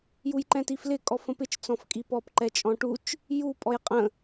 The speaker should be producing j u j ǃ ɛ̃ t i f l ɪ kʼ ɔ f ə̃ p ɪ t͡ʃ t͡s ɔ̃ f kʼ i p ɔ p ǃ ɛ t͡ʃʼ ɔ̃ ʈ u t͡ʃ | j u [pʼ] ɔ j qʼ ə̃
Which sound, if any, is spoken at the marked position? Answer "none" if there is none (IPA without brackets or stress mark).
pʼ